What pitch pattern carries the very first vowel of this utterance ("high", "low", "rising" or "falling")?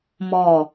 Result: low